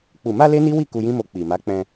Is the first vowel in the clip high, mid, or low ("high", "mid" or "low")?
high